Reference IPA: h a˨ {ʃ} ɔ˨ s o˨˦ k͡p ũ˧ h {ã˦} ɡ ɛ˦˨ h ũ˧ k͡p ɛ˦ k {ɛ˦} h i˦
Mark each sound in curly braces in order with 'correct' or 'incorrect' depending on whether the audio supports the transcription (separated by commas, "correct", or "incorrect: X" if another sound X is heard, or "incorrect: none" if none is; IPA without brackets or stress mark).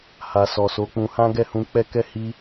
incorrect: s, correct, correct